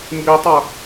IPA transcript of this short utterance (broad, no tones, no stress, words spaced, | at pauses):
mbitˤʌ